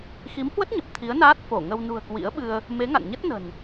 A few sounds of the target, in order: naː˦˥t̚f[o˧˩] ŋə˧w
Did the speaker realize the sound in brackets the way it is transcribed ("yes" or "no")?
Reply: yes